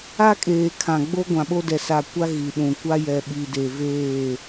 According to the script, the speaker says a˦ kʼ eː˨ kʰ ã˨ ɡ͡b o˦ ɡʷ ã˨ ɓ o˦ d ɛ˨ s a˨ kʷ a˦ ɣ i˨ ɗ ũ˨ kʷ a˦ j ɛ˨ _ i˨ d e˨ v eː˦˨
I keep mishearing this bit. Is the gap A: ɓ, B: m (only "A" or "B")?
A